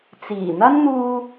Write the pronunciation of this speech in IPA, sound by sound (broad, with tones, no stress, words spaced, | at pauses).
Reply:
t͡siː˨˩ n̪ɐ˥n n̪uː˧